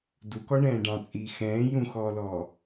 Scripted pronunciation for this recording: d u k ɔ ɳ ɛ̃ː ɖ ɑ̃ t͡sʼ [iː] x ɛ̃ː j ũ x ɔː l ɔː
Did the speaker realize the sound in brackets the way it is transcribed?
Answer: yes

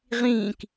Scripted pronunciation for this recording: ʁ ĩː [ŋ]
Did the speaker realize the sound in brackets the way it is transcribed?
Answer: no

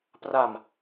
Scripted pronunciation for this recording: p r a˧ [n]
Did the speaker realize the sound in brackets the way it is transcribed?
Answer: no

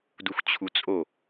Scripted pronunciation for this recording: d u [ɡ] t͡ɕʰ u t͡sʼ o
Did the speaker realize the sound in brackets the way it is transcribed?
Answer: no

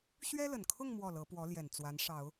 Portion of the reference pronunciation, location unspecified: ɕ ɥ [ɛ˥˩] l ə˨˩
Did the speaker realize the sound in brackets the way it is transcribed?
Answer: no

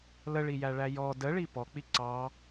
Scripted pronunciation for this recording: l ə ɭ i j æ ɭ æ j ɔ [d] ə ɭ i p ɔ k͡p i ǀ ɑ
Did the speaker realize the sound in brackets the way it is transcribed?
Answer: yes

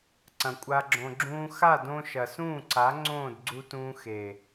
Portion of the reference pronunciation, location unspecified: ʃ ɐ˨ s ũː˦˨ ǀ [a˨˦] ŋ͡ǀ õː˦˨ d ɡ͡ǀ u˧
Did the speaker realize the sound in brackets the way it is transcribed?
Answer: yes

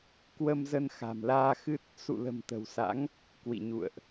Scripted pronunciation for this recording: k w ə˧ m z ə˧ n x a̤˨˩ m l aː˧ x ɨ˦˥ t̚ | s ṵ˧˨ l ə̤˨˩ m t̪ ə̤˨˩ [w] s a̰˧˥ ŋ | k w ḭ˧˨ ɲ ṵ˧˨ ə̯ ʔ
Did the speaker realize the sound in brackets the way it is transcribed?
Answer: yes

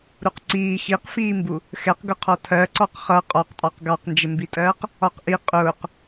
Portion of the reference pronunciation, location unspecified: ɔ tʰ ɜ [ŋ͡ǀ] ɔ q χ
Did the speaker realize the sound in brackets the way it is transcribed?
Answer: no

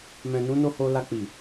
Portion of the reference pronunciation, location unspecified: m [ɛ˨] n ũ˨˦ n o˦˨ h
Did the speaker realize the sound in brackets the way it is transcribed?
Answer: no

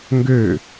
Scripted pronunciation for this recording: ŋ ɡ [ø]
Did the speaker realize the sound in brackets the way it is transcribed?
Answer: yes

